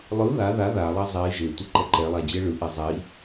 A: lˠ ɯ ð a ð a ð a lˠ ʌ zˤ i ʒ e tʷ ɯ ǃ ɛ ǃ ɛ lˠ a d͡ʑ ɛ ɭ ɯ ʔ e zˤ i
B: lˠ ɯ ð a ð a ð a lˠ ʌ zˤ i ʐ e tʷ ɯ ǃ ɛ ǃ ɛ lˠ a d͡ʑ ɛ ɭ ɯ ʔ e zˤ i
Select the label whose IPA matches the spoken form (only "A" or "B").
A